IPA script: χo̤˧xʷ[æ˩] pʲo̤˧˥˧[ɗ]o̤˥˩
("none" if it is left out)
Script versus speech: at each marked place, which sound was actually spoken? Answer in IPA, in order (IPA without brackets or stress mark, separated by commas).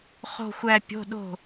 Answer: æ˧, ɗ